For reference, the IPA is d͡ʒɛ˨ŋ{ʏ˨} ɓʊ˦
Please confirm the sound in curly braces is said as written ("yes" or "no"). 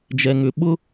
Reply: yes